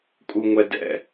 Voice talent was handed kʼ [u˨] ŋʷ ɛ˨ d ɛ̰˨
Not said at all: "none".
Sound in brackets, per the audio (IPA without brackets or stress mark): u˨